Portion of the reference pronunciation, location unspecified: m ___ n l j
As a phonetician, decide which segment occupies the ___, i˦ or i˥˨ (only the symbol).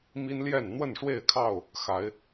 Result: i˦